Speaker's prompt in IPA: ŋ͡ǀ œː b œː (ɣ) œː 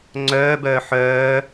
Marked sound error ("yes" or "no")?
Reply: yes